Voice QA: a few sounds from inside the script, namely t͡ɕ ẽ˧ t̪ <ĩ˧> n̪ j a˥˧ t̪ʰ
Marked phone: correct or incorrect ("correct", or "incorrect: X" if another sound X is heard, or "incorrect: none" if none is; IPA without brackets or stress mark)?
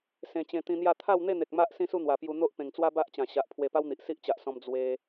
correct